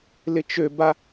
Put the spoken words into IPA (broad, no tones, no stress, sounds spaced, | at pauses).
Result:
l ɪ t͡ʃ ø b a